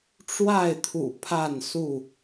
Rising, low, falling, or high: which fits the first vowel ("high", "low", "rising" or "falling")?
falling